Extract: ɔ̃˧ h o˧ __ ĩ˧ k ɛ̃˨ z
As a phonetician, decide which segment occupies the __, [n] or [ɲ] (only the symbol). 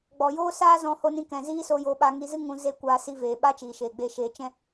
n